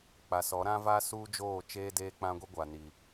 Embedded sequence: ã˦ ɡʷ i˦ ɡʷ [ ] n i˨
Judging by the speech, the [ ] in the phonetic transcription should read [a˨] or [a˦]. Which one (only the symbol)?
a˨